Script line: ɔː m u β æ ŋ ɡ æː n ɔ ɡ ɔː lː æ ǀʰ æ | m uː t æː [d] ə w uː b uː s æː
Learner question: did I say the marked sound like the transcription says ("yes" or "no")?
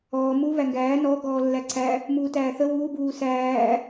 no